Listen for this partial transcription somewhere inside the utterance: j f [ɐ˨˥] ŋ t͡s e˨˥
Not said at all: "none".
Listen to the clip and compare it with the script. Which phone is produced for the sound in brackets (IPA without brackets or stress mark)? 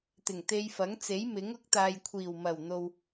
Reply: ɐ˨˥